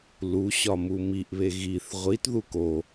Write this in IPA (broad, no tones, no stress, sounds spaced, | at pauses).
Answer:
l u ɕ ɒ m u m i ʔ β e ɣ i θ ʁʷ i t ð u k o